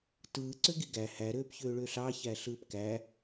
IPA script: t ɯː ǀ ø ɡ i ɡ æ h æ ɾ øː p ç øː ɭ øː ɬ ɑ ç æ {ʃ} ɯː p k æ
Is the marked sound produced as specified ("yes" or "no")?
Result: no